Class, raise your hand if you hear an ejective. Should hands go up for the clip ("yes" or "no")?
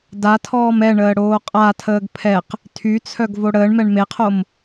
yes